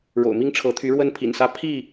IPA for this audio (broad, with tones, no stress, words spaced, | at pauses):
ɻo̰˨˩ʊ̯mi˦ŋ ʈ͡ʂʰɤ˨˦t̪ʰy˨˦ ɻwə˦npʰḭ˨˩nsä˦ pʰi˥˨